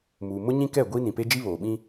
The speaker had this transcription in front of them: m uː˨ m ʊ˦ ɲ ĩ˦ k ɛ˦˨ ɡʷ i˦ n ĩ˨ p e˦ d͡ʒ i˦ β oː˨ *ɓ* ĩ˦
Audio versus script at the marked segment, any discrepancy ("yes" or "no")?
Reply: no